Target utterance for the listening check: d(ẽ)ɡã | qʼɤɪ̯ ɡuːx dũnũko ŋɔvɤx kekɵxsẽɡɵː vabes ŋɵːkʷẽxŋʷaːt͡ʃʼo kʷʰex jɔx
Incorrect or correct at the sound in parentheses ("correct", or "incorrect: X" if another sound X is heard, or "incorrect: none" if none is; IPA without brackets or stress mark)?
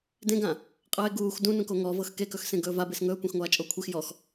correct